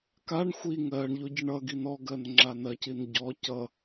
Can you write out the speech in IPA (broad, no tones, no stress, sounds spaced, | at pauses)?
k a ɳ xʷ i ŋ ɜ ɳ ʎ o ɟ ə ɳ ʌ ɡ i n ɔ ɡ ɜ n ŋ͡ǁ a n ɜ c i n ɟ ɔ c ʌ